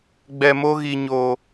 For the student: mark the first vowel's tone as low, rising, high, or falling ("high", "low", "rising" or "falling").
low